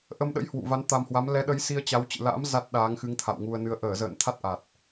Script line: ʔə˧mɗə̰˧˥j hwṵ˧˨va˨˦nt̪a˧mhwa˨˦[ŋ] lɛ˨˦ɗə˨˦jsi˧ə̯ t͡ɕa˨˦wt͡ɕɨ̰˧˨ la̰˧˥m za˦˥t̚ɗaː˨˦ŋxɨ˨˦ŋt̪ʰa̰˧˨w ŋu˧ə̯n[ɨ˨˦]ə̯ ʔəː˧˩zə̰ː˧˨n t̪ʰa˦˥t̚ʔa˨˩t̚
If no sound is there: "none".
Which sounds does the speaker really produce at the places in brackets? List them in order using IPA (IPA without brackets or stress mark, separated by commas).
m, ɨ˨˦